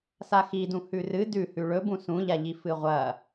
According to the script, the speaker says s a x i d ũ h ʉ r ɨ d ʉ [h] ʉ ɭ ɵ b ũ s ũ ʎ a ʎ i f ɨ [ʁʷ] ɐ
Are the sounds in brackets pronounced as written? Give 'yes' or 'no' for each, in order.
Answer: yes, yes

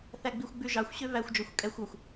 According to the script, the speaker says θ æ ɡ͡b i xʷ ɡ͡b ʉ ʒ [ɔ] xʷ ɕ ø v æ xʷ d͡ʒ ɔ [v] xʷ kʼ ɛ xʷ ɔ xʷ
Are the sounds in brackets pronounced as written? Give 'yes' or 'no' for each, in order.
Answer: no, no

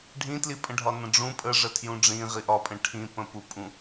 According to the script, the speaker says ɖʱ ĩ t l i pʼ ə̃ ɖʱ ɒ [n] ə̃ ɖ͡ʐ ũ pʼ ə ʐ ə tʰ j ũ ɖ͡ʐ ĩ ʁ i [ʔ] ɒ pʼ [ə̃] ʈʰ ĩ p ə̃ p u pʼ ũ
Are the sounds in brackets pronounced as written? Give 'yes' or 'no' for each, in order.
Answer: yes, yes, yes

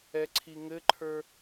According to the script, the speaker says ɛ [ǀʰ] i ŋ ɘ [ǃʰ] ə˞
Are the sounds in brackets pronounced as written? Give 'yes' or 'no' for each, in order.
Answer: yes, yes

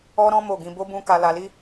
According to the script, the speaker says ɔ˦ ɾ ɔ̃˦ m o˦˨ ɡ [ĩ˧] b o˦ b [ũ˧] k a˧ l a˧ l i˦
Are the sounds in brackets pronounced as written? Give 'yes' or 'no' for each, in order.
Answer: yes, no

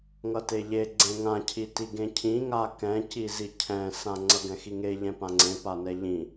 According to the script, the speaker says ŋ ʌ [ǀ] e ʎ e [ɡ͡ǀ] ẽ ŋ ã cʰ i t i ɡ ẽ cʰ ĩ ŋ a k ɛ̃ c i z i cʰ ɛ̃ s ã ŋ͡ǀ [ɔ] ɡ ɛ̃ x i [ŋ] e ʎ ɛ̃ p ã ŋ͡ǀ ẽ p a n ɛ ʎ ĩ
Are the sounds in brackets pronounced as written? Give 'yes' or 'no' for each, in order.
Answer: no, yes, no, yes

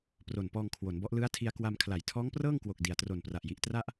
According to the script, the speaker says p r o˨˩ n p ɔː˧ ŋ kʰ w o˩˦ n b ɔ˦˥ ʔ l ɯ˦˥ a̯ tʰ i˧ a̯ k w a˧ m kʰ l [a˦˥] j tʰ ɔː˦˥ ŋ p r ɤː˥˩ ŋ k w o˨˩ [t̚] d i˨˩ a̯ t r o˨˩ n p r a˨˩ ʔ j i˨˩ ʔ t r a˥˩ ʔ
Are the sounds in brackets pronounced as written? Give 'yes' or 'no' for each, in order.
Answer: no, no

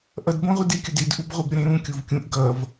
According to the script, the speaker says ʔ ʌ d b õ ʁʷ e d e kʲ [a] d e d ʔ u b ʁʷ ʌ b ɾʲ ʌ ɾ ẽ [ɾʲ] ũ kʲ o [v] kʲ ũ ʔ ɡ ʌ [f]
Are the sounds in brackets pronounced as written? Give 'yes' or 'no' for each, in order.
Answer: no, no, yes, no

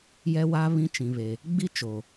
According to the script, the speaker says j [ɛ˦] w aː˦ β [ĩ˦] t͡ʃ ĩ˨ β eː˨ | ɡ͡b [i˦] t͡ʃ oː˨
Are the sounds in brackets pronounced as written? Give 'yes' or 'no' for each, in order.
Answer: yes, yes, yes

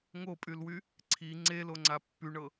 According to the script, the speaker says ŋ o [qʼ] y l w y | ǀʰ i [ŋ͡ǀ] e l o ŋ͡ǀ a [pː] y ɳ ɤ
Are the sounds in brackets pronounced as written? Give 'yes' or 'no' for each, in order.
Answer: no, yes, yes

